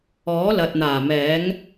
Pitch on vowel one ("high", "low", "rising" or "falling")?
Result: rising